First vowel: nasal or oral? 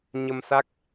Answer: oral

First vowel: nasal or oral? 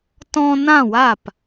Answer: nasal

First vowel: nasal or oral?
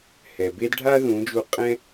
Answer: oral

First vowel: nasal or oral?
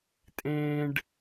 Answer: nasal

